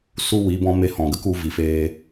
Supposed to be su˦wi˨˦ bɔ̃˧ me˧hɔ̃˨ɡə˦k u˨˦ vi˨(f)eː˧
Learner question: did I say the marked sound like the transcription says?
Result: yes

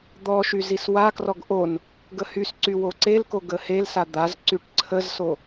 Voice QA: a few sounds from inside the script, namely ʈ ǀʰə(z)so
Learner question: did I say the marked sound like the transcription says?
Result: yes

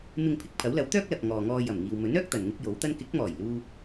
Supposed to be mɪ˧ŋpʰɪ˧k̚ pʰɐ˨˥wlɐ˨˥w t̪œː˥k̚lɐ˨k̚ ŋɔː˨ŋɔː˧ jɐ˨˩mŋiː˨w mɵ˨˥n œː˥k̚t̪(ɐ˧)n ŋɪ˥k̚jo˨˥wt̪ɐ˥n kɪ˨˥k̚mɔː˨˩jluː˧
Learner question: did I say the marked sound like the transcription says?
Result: no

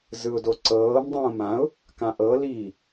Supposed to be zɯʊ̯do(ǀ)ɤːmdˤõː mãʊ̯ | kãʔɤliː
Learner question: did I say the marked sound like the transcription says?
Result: yes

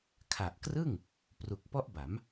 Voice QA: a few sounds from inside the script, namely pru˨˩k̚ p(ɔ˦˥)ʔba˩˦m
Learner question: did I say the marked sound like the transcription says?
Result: yes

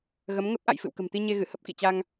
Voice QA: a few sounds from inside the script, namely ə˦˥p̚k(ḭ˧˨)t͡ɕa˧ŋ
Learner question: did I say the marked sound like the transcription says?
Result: yes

